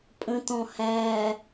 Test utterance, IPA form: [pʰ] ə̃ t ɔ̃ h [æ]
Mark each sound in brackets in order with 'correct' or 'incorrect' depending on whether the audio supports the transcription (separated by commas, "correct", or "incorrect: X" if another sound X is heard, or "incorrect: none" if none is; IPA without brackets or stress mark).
incorrect: pʼ, correct